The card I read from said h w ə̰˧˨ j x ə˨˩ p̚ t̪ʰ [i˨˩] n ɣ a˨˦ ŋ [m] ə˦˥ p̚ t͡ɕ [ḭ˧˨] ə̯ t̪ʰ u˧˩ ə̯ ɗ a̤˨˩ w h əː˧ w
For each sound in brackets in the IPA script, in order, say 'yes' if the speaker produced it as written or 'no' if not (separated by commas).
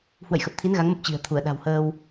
no, yes, no